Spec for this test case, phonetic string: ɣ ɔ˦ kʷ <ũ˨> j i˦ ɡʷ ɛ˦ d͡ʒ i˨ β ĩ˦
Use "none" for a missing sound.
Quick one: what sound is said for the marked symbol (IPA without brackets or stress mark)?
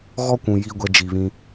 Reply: ũ˨